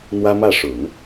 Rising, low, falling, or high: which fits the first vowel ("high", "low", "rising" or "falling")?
high